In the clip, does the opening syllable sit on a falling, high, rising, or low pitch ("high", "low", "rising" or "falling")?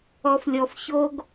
low